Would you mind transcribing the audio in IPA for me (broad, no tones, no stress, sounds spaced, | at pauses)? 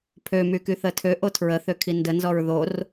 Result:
pʰ ø m y k y θ ə tʰ ø ʔ o tʰ ɹ ə θ ø kʰ i n d ə n z ɔ ɹ ð o r